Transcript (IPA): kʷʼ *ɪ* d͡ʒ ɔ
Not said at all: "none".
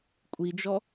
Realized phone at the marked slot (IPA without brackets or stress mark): i